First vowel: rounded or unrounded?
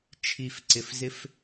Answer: unrounded